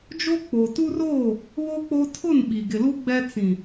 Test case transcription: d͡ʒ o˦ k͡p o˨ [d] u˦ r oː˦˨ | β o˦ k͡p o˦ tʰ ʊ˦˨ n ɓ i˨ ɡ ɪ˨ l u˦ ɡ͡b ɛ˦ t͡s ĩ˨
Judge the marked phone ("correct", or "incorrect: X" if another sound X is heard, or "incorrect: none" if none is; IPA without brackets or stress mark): incorrect: t